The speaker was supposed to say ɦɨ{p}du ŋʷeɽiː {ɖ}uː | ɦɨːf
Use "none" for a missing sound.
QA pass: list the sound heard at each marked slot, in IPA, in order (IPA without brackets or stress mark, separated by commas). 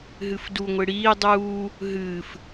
f, dˤ